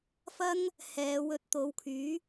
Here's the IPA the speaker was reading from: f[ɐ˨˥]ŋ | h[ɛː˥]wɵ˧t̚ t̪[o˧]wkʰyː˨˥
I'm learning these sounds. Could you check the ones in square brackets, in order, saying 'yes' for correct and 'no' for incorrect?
no, no, no

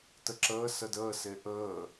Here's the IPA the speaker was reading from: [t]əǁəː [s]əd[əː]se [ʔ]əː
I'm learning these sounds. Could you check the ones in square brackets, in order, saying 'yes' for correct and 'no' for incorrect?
yes, yes, yes, yes

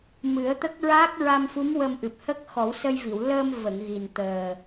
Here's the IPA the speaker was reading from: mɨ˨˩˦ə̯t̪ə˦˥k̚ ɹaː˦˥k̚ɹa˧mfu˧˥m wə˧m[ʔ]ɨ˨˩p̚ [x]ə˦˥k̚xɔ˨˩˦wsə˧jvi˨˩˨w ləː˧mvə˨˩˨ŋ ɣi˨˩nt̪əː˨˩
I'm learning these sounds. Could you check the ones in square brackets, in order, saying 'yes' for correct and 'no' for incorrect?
yes, no

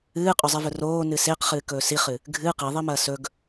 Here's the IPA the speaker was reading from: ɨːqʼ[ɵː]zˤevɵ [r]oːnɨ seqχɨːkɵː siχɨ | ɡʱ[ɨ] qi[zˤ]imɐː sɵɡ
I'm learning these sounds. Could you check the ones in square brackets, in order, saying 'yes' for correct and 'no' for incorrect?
no, yes, no, no

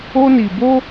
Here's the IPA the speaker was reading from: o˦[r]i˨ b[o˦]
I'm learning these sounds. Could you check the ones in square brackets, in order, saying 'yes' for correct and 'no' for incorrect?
no, yes

